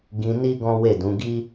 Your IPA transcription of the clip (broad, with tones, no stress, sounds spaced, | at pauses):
ɡ ĩ˧ n i˦ ɡ ɔ̃˦ w e˦˨ d ũ˨˦ ɡ i˦